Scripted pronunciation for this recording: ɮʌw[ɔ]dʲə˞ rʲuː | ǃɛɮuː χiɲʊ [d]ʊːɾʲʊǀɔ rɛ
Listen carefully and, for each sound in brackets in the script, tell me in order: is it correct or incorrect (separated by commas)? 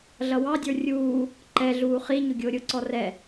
incorrect, incorrect